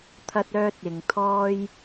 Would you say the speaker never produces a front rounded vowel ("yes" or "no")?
no